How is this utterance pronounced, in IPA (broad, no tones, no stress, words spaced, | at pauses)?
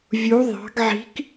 vʲu ðˤɑ̤ɡ ʕi̤k